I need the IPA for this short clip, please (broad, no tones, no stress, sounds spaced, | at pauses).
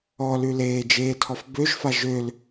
ɔ l ʉ l eː d͡ʒ eː tʰ ɔ f b ø ʒ f a ʒ ø l